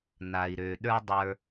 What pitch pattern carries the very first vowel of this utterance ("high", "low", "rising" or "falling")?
low